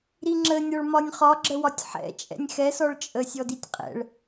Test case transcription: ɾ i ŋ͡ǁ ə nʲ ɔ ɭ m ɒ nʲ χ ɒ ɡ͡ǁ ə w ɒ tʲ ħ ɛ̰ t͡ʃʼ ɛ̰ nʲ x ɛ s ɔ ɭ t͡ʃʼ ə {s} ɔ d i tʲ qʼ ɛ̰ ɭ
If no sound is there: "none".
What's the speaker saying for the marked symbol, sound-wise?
sʲ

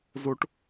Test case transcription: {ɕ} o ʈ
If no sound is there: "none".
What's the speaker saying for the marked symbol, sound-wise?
z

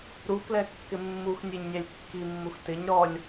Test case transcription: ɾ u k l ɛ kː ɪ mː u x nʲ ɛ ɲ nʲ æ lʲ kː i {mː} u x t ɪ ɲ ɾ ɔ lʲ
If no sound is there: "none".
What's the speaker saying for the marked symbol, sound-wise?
mː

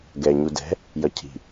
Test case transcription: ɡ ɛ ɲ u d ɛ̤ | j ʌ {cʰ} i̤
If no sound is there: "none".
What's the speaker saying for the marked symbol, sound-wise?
cʰ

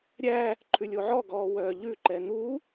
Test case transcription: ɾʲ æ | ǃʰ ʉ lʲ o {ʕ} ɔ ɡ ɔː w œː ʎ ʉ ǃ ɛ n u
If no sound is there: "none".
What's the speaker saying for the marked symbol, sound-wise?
ʕ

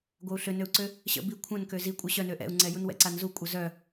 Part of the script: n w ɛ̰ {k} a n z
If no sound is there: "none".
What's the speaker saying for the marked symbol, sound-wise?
ǀ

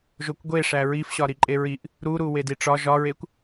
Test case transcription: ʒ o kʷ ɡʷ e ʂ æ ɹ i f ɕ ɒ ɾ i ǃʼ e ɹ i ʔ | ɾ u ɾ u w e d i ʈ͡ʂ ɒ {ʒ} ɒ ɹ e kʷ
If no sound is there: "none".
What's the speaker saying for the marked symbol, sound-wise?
ʒ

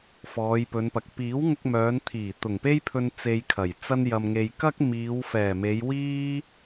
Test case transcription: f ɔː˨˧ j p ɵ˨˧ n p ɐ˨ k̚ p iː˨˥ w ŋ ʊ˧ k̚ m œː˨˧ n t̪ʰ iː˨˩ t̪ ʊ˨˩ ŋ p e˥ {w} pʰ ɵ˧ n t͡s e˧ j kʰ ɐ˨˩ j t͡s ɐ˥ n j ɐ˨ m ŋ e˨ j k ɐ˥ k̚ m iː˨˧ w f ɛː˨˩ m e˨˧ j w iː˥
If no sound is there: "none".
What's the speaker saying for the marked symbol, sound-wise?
j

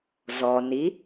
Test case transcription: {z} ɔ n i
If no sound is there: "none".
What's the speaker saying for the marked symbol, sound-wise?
z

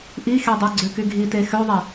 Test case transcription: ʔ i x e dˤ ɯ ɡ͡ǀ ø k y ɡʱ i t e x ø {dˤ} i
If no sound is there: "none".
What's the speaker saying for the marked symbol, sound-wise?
ðˤ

